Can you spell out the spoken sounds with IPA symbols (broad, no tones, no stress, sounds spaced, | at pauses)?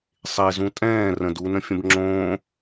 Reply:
sˤ e z ũ tʼ ɛ̃ː r ə̃ d u n ə̃ fʲ ə̃ b ŋ͡ǁ õː